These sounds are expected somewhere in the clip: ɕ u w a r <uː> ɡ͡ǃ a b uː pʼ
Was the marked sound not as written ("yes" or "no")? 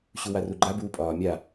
yes